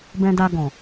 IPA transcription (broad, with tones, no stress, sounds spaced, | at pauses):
b ɛ̃˧ d a˧ ɡ ɔ̃˨